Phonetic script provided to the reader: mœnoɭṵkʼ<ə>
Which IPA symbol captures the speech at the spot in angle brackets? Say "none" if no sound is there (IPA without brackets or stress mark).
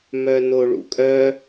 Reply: œ